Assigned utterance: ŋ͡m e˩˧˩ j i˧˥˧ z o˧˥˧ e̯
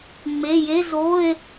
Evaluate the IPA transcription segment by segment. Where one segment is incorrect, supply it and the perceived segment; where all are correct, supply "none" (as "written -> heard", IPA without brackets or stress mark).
i˧˥˧ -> e˧˥˧